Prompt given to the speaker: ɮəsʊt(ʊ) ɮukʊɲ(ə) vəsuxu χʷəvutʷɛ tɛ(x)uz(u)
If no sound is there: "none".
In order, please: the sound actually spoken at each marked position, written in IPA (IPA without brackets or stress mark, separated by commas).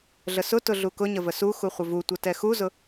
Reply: ʊ, ə, x, ʊ